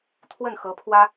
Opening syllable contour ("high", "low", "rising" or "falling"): falling